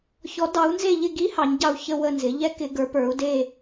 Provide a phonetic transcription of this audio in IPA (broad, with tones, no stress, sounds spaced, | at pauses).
ç ɔ˨˦ d ɑ˨˦ u̯ n z e˦˨ ʎ ɪ˦˨ ɡ i˦˥ h ɑ˨˦ ɲ ɟ ɑ˦˨ u̯ ç ə˦˨ w ə˦˨ n z ɪ˨˦ ʎ ɛ˦˥ k ɪ˨˦ ɡ ə˞˨˦ p ə˞˨˦ u̯ d e˦˨